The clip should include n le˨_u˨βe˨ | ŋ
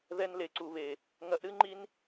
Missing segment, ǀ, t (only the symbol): ǀ